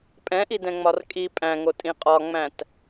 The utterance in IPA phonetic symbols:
pʼɛ̃ʔidɛ̃ŋ͡mɒr kʼi pʼæ̃ŋotʼĩ qʼɒŋ͡mæ̃t

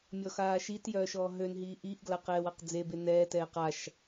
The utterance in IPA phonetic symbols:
mʲɔxaːʃitjœː ʃɔːɦønɦiː ʔiːʔɡla qɛːwaqd͡zebe nɛːtɛː qaʃ

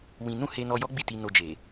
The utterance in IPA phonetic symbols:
wĩ˧ nũ˦he˧nɔ˧jɔ˦ ɡ͡bi˦˨ti˧ no˧d͡ʒe˨

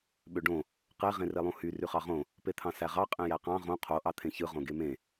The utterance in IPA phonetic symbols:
ɓøɖõ | qe ʁẽrelˠũhy ryχɑʁõ | pet̪ʰɑ̃sæʁɑ qʼẽjæqɑ̃ ʁõ qʰo ʔɑt̪ʰẽçɯ ʁõɡemẽ

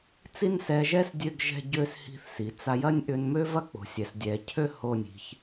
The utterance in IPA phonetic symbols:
t͡si˥n sɛ˧ʒɛ˥s dʲø˥˧ɡʒɛ̤˥˧ɟø˥˧s hi̤˧θsi˩˧t͡sa˧ jɐ˥˧nʲʔʏ˧nmø˥ vɐ˥k͡po̤˩˧sʲɛ˩˧s dʲɛ˩˧ cʰø˥˧ ho˧˩nʲi̤˩˧ç

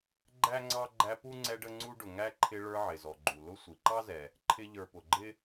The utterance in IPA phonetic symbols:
ɡ͡ǃæ˥ŋ͡ǀɑ˥ ɡ͡ǃæ˦pu˥ŋ͡ǀɛ˦ ɖə˥ŋ͡ǀu˥ɖʊ˨ ŋæ˥ǃʰɪ˦ ɭə˞˦ʕɪ˩zɔ˩ɡ͡ǃu˩ lʊ˦sʷi˩ǃɑ˥zɛ˩ | ǃʰɪ˦ʎə˞˨pʊ˩ɡ͡ǃɪ˥

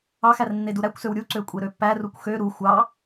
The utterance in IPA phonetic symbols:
ɑxær nːeduɾækʷsøw ɾʲuǀø kʷʼeɾøpːærukʷ xø ɾu xʷɑ

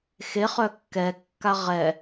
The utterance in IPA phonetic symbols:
xeχœ kːɛkːa ʁɛ

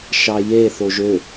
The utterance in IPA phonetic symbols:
ʃɑjeθoʒ ø

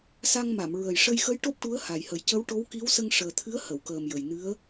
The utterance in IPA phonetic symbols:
sa˧ŋma˨˩˨m ɹə˨˩jʂə˧jxə˧˥j ʈo˦˥p̚ʈu˧˥ə̯ ha˨˩jhə˨˩˦j cə˧˥wʈo˧˥wki˧˥w sə˧ŋʂəː˨˩t̪ʰɨ˧˥ə̯ hə˨˩˨wkəː˨˩mjə˨˩jnɨ˧˥ə̯

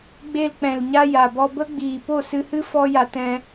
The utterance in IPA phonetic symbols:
ɡ͡be˧lk͡pɛ̃˨lɲa˧ ja˨bɔ˧bə˦ ɡ͡biː˨po˦˨sɨ˧hɨ˦ fɔ˦ja˧t ɛ̃˧

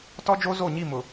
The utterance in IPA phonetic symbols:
tɔ˦d͡ʒo˦ zo˦˨ɲi˦˨ mʊ˨

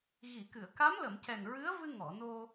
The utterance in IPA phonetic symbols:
ɣi˨˩˨kɨ˨˩˨ə̯ ka˧˥mlə˨˩˨m cɛ˨˩nɹɨ˧˥ə̯ vɨ˧ŋɔ˨˩˨ no˧

